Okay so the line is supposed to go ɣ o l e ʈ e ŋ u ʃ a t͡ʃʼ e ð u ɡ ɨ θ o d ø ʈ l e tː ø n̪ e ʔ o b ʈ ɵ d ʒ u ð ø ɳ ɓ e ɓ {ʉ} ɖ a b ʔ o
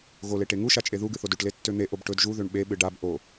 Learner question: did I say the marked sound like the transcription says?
no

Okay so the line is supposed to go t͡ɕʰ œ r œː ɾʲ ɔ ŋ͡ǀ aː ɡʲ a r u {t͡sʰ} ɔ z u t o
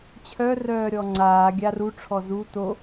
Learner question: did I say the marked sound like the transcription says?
no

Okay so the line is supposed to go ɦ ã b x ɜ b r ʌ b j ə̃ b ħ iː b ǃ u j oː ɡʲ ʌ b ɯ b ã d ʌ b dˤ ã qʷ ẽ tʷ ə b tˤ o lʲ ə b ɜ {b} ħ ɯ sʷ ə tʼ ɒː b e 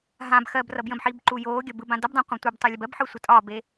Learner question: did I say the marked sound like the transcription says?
yes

